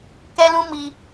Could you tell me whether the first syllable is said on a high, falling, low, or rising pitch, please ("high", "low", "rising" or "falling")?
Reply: high